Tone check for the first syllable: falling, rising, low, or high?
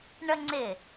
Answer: high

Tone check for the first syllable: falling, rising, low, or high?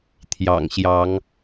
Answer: low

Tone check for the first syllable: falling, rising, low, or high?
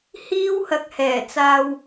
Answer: high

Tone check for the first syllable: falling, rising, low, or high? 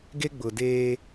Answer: high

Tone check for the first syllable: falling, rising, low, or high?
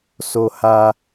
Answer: high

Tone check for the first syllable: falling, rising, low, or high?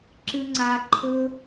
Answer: high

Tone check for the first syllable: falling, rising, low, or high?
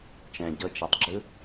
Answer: low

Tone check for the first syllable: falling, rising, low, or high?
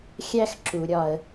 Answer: high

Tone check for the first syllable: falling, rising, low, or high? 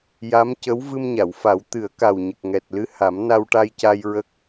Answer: rising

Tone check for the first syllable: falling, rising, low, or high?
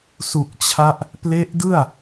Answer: low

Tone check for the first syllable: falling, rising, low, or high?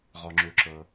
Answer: low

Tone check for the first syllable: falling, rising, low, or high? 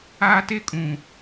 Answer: high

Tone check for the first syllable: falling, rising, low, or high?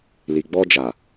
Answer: low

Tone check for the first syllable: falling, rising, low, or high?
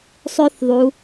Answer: high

